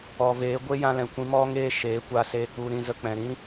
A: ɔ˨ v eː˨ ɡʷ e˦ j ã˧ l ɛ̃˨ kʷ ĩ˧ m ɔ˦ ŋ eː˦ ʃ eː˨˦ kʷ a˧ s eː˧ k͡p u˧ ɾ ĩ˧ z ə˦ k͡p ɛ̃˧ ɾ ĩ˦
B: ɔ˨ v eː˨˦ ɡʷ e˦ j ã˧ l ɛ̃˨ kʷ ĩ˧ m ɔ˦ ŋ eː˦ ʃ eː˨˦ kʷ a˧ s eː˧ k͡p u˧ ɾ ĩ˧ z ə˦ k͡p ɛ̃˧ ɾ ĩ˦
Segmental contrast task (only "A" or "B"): B